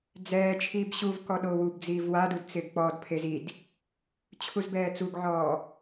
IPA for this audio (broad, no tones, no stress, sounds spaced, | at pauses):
d͡z ɛː t͡ʃʰ iː b ɕ u v k ɔ ɗ o w u b d͡z iː v w a d u d t͡s ɪː ɡ k͡p ɔ d pʰ e z i d | t͡ɕʰ u z b ɛː t͡s u ɡ ʕ ɔː